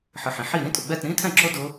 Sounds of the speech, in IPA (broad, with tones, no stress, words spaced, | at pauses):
ħɨ˨ħĩ˩˥ ħi˥˨ ɾĩ˦˥tʼʊ˨ɡ͡bɛ˥˨t ɾĩ˦˥tʰɛ̃˥˨ǁo˦˥ dʊ˦˥